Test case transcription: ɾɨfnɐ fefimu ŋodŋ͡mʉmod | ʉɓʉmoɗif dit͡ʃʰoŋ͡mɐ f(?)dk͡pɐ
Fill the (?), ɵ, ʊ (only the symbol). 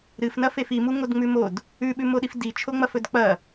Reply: ɵ